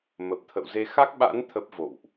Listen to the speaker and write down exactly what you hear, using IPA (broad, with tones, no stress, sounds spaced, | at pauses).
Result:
m ə˨˩ p̚ t̪ʰ ə̰˧˨ w z e˧ x a˦˥ k̚ ɓ a̰˧˥ n t̪ʰ ə˦˥ p̚ v o̰˧˨ w ʔ